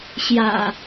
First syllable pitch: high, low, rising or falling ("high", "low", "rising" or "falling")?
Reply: low